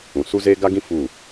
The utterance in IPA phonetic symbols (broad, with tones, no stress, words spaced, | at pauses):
ũ˨ su˦zeː˦ ɡa˦ɡĩ˦ fu˦˨